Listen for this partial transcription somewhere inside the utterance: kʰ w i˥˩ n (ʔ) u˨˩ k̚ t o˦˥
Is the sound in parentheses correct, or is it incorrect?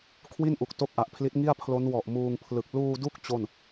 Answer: correct